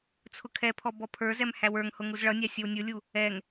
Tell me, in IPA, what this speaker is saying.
t͡sʰ ʊ kʰ ɛ pʰ ɔ b ɔ pʰ ə˞ z ɛ m h æ w ə˞ ŋ h ʊ ŋ u z ɭ ʌ nʲ ɑ sʲ ʌ w nʲ ʊ lʲ u | ɛ ŋ

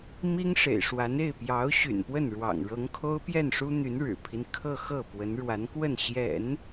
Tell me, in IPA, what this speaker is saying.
m i˥ ŋ ʂ ḛ˨˩ ɪ̯ ʂ w a˧˥ n e˥˩ ɪ̯ p j ɑ˧˥ ʊ̯ ɕ y̰˨˩ n p w ə˥˩ n ɻ w ɑ̰˨˩ ŋ ɻ ɤ˧˥ ŋ kʰ o˥ ʊ̯ p j ɛ˥˩ n ʂ u˥ n̪ y˧˥ n ɻ ɻ̩˨˩ pʰ i˦ n kʰ ɤ˥˧ x ɤ˥˩ p w ə˧˥ n ɻ w a˧˥ n k w ə˥˩ n ɕ j ɛ̰˨˩˦ n

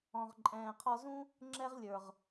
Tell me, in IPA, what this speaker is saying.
ɔ̃˨ ʁ ǃʼ ɛ̃ː˨ qʰ ɔ˧ z ũ˦ | ŋ͡ǁ ɛ˦ ʁ lʲ ə˞˨ ʁ

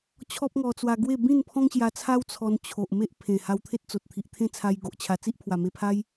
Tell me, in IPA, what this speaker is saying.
t͡ɕʰ ɔ˦ p̚ ŋ ɔ˧ t͡s w a˧ ɡ w e˥˧ b ĩ˥˧ n pʰ ɔ̃˦ ŋ ɕ j a˧ t͡sʰ a˦ w t͡sʰ ɔ˧ n t͡ɕʰ o˨ ʔ m e˦ ʔ pʰ ẽ˨˩ h a˧ w t̪ʰ e˦ t̚ t͡s o˨ t̚ t̪ʰ i˨ ʔ t̪ʰ ẽ˦ t͡sʰ a˧ j ɡ o˨ ʔ t͡ɕʰ a˧ t͡s i˦ ʔ pʰ w a˨˩ m e˧ pʰ a˦ j

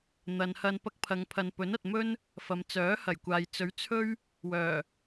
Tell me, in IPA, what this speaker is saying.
n̪ ɐ˨ n h ɐ˧ n p ɐ˧ k̚ pʰ ɐ˨ ŋ pʰ ɐ˨ n p ɵ˨˥ n ɐ˨ t̚ m ɵ˥ n | f ɐ˨ m t͡s œː˨˥ h ɐ˨˩ j kʷ aː˨ j t͡s ɵ˨˥ ɥ t͡sʰ ɵ˥ ɥ | w œː˨˩

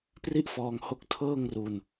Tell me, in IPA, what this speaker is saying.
p r i˥˩ ʔ f ɔː˧ ŋ h o˦˥ k̚ tʰ ɤː˥˩ ŋ r u˧ n

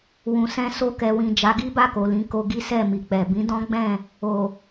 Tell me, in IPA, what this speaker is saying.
w ũ˨ s ɛ̃˧ s o˧ k ɛ˨ w ĩ˨ d͡ʒ a˨˦ ɡ i˦ b a˦˨ k o˨ l ĩ˨˦ k o˧ ɡ i˦ s ɛ˦˨ m i˨ k͡p ɛ˨ b ĩ˨˦ d ɔ̃˦ ɡ͡b ɛ̃˦˨ | o˨

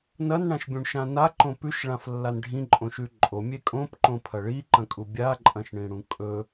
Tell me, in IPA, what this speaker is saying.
n ɐ n ɳ ã ʃ bʲ ũ ɳ ʃ ã n a ǃ õ p ʉ ʃ ɭ ã f lː a n ɖʱ ĩ ǃʼ õ ʃ ʉ ǃʼ o mʲ e kʼ õ p ǃ õ pʰ ɐ ɭ i ǃ ɐ̃ kʼ u bʲ a ǃʼ ɐ̃ ʃ ɳ ĩ ɽ ũ kʼ ɵ

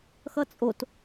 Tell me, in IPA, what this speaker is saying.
x ʌ t͡sʼ o t

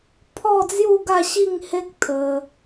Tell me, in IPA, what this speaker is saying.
pʰ ɔ˥˧ d͡z j u˥˧ ɡ a˥˧ ɕ i˥˧ ŋ h e˦ k̚ t̪ʰ ə˧

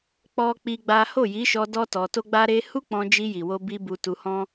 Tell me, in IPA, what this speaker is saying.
k͡p ɔ˦ k͡p i˦ ɡ͡b a˦ h o˦˨ j i˨˦ ʃ ɔ˧ d ɔ˦ t ɔ˧ t o˦ ɡ͡b a˦ ɾ e˦ h u˦ k͡p ɔ̃˧ d͡ʒ i˧ j i˨ w o˧ b i˧ b u˧ t u˧ h ɔ̃˦

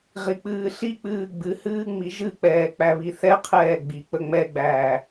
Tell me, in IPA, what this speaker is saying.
ʁ i k͡p ɨː ɬ i k͡p ɨː ɡ͡b ɨ h ɨː ŋ͡m i ʒ ɨ k͡p ɛː k͡p æ β i θ ɛ qʰ ɛː ɡ͡b i k͡p ə ŋ͡m ɛ ɡ͡b æː

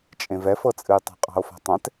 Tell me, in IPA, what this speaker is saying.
t͡ʃʼ ẽ v ɛ f ɤ t͡sʼ ɨ j tˤ a̤ qʼ ɑ̤ o̯ f a̤ tˤ ɛ̃ t

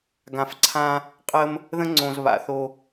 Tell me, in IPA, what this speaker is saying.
ɡ ã˨ f ǀʰ ã˦ | qʼ ə˦ m | ð ə̃˦ ŋ͡ǀ õ˨ z β a̰˨ θ o˦

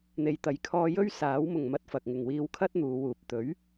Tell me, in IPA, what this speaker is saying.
n̪ e˨ j t̪ ɐ˨ j kʰ ɔː˧ j ɵ˥ ɥ s aː˨˥ w m ʊ˨ ŋ m ɐ˧ t̚ f ɐ˨ k̚ ŋ ɪ˨ ŋ w iː˧ w kʰ ɐ˥ t̚ n̪ uː˨˧ w uː˨ p̚ t̪ ɵ˨˥ ɥ

